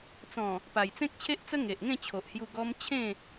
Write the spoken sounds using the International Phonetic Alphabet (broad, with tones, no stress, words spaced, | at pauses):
t͡sɔ̃˨˩ | pa˨˩jt͡sẽ˦k̚t͡ɕʰe˦ʔt͡sə˦ ŋe˨ʔŋẽ˥˧t͡ɕʰo˨ʔhju˧ ɡɔ˧m t͡ɕʰẽ˥˧